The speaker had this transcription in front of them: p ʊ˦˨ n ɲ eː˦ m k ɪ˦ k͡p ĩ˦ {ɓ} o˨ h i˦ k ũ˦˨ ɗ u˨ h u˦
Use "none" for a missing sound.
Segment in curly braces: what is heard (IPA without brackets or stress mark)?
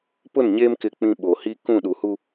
ɓ